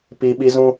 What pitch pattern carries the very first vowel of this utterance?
high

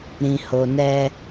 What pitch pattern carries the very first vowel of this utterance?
low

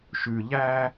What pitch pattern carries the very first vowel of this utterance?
low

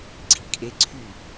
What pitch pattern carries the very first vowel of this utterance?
low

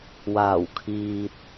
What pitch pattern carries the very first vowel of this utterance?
low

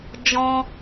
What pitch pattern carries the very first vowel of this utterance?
high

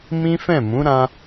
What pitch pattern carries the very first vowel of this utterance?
high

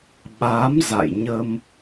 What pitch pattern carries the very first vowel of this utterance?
rising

